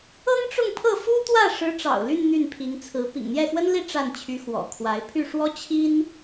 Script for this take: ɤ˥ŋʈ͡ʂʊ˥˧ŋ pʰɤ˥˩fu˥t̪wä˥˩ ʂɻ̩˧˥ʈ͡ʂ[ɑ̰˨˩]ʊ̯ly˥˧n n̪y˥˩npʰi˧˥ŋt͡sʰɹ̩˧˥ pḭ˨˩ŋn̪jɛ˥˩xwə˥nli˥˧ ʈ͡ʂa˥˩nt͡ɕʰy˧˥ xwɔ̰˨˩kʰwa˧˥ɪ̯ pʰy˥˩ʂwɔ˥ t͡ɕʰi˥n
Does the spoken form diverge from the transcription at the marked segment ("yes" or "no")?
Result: no